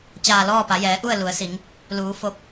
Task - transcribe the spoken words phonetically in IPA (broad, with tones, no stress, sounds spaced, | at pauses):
t͡ɕ aː˧˩ l ɔː˥˨ p a˩˧ j ɛː˩˧ ʔ u˥˨ ə̯ l u˩˧ ə̯ s i˩˧ ŋ | l uː˩˧ f o˧ p̚